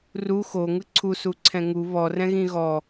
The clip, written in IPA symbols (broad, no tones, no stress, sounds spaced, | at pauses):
r u x o ŋ ɯ ǀʰ u s u ǀʰ ɛ̃ ŋ u β ɔ r ɛ̃ ɣ ĩ ɣ ɔ